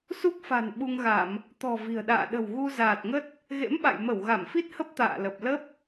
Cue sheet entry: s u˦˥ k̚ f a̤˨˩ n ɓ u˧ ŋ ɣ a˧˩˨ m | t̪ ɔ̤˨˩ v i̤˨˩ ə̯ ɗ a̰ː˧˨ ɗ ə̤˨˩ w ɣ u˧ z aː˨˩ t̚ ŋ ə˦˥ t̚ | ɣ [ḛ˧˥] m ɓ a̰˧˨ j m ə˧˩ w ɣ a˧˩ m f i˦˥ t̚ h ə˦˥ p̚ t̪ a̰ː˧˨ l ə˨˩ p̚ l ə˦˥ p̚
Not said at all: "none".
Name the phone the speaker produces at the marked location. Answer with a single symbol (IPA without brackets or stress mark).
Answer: ḛ˧˥